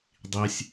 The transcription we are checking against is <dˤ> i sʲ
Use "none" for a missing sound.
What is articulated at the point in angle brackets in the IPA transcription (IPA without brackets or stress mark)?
dˤ